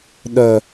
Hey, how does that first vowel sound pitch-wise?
low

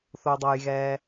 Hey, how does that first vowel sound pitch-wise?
low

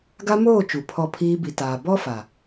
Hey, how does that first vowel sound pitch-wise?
high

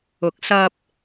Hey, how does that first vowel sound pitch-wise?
rising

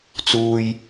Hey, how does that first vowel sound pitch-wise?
low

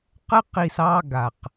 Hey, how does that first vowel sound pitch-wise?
high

